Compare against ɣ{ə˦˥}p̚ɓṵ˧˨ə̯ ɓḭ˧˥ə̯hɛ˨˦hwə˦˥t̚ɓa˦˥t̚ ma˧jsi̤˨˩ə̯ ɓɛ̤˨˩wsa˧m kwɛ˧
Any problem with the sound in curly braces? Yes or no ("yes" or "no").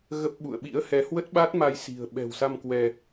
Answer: no